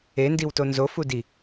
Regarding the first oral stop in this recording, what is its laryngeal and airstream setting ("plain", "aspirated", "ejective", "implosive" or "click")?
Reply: plain